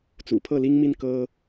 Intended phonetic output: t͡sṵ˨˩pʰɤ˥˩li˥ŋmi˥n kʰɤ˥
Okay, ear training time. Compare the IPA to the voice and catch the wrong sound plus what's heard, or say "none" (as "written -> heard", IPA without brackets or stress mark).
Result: kʰ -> k